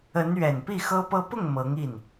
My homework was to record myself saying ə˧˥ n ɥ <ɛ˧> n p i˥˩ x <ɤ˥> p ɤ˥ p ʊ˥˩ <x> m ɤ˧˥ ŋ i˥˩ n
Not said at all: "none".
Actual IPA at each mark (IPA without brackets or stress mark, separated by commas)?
ɛ˨˩, ɤ˥, ŋ